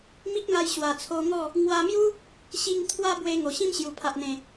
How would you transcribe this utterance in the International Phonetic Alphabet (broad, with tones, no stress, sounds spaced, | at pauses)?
m i˦ k̚ ŋ a˧ j ɕ w a˨˩ t͡sʰ o˧ ŋ ɔ˥˧ | ŋ w a˧ m j u˦ | ɕ i˧ ŋ t̪ʰ w a˦ b w e˧ ŋ o˨˩ ɕ ĩ˦ m ɕ j u˨˩ pʰ a˨ ʔ n̪ ẽ˨˩